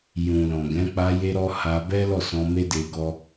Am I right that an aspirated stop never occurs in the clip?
yes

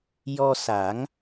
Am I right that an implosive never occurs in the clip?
yes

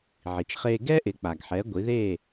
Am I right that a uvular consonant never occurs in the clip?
no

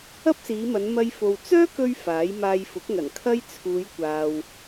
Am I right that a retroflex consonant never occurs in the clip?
yes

